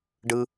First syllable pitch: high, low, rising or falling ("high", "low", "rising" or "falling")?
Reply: high